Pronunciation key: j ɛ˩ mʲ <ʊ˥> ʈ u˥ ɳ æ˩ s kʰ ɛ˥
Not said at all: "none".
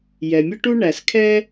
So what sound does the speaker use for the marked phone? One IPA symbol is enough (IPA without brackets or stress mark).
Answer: ʊ˥